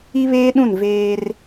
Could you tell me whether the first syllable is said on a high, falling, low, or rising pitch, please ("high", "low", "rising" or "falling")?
high